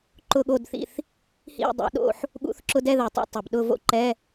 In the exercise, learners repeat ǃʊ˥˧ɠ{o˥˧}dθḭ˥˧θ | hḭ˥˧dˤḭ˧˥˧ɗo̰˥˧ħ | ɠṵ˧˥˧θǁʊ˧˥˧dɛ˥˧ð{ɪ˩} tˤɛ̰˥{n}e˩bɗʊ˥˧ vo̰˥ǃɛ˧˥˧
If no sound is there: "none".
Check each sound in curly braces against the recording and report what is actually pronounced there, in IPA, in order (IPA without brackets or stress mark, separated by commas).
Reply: o˥˧, ɛ˩, tˤ